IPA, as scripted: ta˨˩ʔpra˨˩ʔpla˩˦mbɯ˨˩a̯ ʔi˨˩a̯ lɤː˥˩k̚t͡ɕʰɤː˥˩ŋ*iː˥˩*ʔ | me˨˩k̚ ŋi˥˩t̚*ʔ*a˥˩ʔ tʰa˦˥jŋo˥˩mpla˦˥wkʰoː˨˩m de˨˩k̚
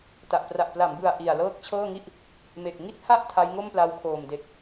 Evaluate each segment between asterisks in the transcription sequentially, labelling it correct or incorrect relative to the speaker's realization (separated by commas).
incorrect, incorrect